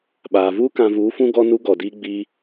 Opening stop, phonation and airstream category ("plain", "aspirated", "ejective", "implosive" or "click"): implosive